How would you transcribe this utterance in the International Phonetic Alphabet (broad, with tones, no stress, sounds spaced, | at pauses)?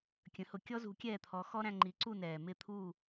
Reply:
kʲ ə̃˩˥ h ʊ˧ kʲ ɔ˥ z ṳ˩˥ kʲ ɛː˥˩ t̪ʰ ɔ˩˥ x ɔ˥ ɾ æ̃˧ ŋ͡ǃ i˩˥ ǀ u˥˩ n ɛː˩ m ɪ˥˩ t̪ʰ u˥˩